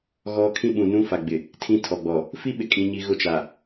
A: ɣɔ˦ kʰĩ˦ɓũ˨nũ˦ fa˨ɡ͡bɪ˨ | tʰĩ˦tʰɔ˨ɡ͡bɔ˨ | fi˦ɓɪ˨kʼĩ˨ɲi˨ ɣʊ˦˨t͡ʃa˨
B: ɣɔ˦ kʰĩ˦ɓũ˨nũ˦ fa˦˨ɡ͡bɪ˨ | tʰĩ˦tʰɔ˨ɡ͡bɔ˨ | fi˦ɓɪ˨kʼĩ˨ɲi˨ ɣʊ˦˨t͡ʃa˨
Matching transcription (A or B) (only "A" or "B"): A